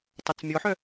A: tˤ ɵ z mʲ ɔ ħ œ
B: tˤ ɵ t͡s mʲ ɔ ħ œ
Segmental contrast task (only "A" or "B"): B